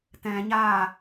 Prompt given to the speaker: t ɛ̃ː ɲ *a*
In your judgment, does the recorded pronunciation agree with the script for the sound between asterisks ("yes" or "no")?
no